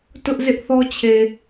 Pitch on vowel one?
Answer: high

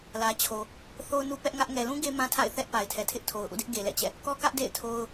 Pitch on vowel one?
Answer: low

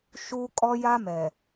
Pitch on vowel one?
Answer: high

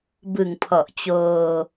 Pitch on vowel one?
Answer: low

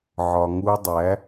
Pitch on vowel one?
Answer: low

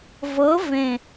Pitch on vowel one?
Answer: rising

